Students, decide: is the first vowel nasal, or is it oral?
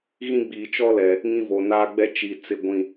nasal